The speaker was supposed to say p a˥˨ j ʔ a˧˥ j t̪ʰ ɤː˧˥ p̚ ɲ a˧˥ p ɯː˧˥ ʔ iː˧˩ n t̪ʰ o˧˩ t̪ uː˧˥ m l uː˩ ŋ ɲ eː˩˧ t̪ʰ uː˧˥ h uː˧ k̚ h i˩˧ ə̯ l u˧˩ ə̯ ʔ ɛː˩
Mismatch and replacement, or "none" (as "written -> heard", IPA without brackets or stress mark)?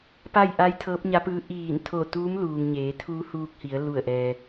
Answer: none